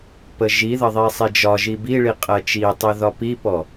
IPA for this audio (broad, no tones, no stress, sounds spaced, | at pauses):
p ə ʒ i ð ə ðˤ i sˤ i d͡ʒ ɒ ʒ i b i ɭ i qʼ ɜ t͡ʃ i tˤ i ð ɒ p i p ɔ